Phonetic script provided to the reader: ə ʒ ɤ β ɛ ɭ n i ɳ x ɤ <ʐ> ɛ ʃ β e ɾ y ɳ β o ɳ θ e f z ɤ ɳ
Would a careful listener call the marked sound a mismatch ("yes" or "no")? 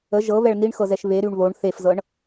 yes